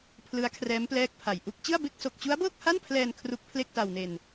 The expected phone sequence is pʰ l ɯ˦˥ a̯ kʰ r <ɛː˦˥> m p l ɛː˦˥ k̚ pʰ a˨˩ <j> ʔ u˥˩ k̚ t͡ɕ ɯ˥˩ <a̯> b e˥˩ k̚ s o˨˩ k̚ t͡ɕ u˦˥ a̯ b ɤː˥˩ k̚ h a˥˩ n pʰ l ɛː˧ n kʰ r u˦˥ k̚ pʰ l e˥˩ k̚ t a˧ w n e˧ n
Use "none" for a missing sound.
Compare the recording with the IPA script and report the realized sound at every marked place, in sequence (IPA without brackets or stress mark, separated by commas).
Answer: ɛː˦˥, j, a̯